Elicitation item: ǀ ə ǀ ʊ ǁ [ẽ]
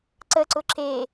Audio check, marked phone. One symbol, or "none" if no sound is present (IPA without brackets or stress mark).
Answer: e